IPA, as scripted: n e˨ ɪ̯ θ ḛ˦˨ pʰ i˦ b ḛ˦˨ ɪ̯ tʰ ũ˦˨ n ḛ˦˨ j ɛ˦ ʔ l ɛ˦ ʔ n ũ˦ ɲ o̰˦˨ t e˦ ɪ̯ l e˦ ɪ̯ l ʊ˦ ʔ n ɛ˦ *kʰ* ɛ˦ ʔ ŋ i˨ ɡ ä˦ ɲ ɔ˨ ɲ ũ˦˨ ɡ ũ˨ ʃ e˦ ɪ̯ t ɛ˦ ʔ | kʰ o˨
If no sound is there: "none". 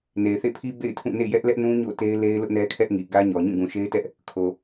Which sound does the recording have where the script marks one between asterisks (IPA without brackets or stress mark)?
kʰ